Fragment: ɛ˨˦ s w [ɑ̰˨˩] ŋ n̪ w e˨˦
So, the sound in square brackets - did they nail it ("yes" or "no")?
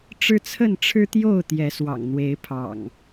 yes